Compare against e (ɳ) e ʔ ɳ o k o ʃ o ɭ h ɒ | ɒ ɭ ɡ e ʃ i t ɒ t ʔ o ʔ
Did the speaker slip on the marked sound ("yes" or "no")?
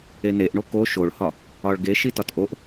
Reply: yes